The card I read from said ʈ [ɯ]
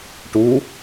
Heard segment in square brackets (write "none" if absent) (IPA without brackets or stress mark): u